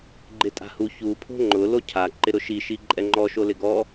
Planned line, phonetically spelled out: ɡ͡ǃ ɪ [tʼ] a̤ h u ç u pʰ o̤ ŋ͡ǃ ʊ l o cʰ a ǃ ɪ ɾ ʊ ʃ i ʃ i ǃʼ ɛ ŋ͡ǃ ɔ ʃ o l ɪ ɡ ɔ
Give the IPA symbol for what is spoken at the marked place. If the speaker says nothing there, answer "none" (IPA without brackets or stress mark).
tʼ